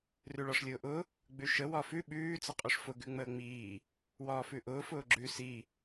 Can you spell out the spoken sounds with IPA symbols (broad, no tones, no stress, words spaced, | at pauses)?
rʉɭɒʂlʲʊːʔʊ | ɡ͡bʉʃə wɒfʉ ɓʉː t͡səqʼʉʂfʊ ɡʉŋ͡məːŋ͡miː | wɒːfʉʔʊː fʊːɡ͡ǁʉ si